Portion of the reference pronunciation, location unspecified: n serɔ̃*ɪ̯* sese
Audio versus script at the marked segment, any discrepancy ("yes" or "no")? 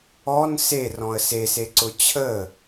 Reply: yes